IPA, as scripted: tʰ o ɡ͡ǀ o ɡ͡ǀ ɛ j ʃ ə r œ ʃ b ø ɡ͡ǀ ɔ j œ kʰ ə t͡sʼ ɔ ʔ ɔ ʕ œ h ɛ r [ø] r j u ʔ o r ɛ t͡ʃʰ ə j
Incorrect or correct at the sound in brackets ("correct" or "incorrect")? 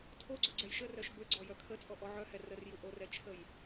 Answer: incorrect